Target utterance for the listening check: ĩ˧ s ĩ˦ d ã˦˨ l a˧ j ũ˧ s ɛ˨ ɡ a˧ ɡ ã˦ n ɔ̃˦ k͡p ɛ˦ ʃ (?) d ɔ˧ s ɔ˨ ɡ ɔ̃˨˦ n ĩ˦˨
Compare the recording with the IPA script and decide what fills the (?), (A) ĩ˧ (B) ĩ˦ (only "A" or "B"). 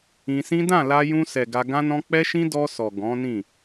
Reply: B